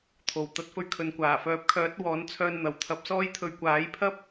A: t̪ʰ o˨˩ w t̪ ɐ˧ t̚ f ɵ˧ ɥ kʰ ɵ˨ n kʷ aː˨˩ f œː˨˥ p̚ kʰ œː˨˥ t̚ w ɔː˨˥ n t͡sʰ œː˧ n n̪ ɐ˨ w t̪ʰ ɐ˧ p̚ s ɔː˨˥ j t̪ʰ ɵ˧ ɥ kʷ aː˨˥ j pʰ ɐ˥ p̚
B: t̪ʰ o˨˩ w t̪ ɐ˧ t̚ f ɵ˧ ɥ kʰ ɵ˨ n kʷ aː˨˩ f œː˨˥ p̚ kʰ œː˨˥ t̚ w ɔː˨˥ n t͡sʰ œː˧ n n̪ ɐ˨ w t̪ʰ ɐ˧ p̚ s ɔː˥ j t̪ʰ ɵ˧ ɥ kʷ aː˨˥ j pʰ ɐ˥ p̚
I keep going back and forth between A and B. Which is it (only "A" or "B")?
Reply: B